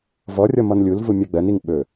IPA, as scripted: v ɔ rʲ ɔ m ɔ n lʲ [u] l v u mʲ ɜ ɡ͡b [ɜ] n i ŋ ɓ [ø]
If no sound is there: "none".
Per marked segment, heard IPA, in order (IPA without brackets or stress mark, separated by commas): u, ɜ, ɵ